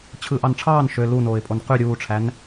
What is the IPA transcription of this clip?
t͡ɕʰ ɯ ʔ ɑ n ʈ͡ʂʰ ɑː n ʃ ø l u n oː ɪ̯ pʼ o n q y ɾʲ uː ʈ͡ʂʰ æ n

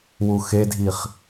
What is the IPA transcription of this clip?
w u x e dʱ i χ

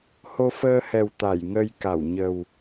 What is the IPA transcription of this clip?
h o˧ f əː˧ h ɛ˨˩ w t̪ a˧˩ j ŋ ə˧ j k a˧˩ w ɲ ə˨˩ w

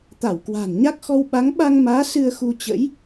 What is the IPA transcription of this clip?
t̪ a˧˩ w k w a̤˨˩ n ɲ a˦˥ k̚ x ɔ˧ w ɓ a˨˦ ŋ ɓ a˧ ŋ m aː˨˦ s ɨ˧ ə̯ x u˧ t͡ɕ ə̰˧˥ j

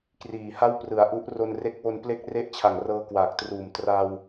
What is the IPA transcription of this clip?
k r iː˨˩ h a˥˩ w p r ɯ˩˦ a̯ ʔ u˦˥ ʔ r o˧ n r e˦˥ k̚ w o˧ n p l e˥˩ k̚ r e˥˩ ʔ t͡ɕʰ a˨˩ ŋ r ɤː˦˥ k w aː˨˩ k̚ t r uː˨˩ m t r a˧ w

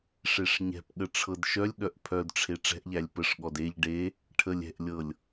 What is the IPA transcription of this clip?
ʂ e ʂ ɲ ɛ̤ p ɠ ə ʈ͡ʂʰ ɤ d ʃ œ lʲ ɠ œ ʔ pʰ œ d ʈ͡ʂʰ e ʈ͡ʂ ɛ̤ ʔ ʎ æ lʲ p ə ʂ ɠ ɔ d e ʎ ɖ e | ʈʰ ə lʲ ɛ̤ ʔ lʲ ɤ lʲ

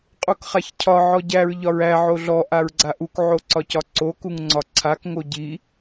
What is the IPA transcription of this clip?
qʼ u k χ a ç cʰ ɒ ʕ ɔ ɟ æ ɹ ʎ ɒ ɹ æ ʕ o ɮ ɔ ʔ a ɹ ɡ͡ǀ a ʔ u k ʕ o ǀ ɒ c ɒ ǀ o k u ŋ ŋ͡ǀ ɒ ǀʰ a k ŋ o ɟ i

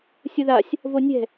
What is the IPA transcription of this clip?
sʲ ʊ ð a sʲ | v o nʲ ɛ̤

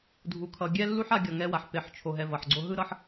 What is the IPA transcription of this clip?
dʱ u˧ kʰ ʌ˧ ɡʲ ɛ˦ lː u˦ ħ a˧ ɡʲ ʌ˨ ŋ ɛ˧ w a˨ ħ p e˨ ħ t͡ʃʰ o˨ ɦ ɛ˧ v ʌ˨ ħ ɡ͡ǀ o˧ ɦ ɯ˦ ɾ ʌ˦ ħ

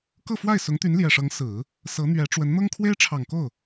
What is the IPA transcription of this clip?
k ɤ˥˧ f w a˥˩ ɪ̯ s ʊ˧˥ ŋ t̪ y˧˥ n l j ɛ˨˩ ʂ ɤ˧˥ ŋ s ɹ̩˨˩˦ | s ɤ˧˥ n̪ ɥ ɛ˧˥ ʈ͡ʂ w ə˧˥ n n̪ ɤ˥ ŋ kʰ w e˥ ɪ̯ ʈ͡ʂʰ ɑ˨˩ ŋ k o˥˩ ʊ̯

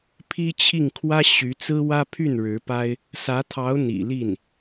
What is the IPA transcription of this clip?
pʰ i˥ t͡ɕʰ i˥˩ ŋ kʰ w ä˥ ɕ y˧˥ t͡s ɹ̩˥ w ä˥ pʰ y˥˩ n ɻ ɻ̩˧˥ p a˥ ɪ̯ | s ä˧˥ t̪ʰ ɑ˧˥ ʊ̯ n̪ ḭ˨˩ l i˥˩ n

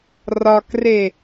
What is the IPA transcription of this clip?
r ɒ k r e

